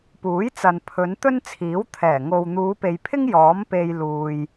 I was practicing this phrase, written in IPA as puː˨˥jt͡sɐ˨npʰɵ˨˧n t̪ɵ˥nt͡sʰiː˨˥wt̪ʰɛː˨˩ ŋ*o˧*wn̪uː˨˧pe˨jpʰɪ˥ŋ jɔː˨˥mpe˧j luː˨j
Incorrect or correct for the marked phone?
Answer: incorrect: o˨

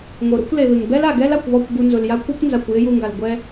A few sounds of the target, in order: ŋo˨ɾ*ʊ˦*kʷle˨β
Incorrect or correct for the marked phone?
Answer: correct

